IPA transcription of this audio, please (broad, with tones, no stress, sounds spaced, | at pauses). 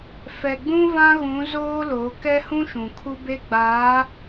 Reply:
f ɛ˨ ɡ͡b ũ˦ v ã˦ ɣ ũ˨˦ z oː˦ l o˨˦ k ɛ˦ h ũ˦ ʃ ũ˨ kʰ u˦ b e˦ ɡ͡b aː˨˦